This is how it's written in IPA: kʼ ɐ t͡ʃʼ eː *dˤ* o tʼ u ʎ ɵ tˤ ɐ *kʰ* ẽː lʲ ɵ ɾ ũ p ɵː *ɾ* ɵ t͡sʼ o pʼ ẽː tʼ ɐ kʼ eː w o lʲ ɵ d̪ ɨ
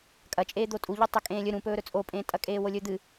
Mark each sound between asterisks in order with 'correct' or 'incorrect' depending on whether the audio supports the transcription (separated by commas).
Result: incorrect, incorrect, correct